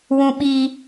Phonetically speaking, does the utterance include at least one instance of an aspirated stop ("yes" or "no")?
no